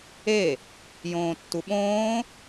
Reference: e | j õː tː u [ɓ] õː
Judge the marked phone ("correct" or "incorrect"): correct